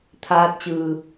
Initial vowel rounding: unrounded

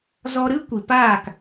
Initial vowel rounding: rounded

